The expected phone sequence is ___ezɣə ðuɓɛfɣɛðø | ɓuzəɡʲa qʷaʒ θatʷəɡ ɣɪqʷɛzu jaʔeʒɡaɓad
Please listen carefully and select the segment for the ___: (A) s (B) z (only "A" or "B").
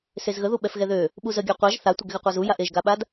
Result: A